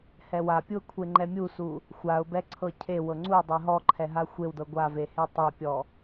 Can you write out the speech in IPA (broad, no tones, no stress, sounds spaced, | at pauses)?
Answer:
h ɛ w a pʲ u ə̯ kʷʰ e ŋ͡ǃ ɛ mʲ u s u | xʷ a ʊ̯ b ɛ ǀʰ ɤ cʰ e w ɤ ŋ͡ǀ u ɪ̯ dˤ ɛ ɦ ɔ ǃʰ ɛ ɦ a xʷ e w d ɤ ɡʷ a v e h e tˤ e pʲ ɔ